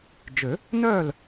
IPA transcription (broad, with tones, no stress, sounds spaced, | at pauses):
d͡ʒ ø˨˩˦ | n œː˥˨ l